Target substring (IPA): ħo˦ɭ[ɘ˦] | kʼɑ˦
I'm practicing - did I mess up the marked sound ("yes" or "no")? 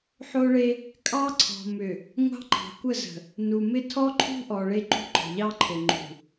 yes